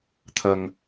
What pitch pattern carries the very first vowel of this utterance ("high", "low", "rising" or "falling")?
low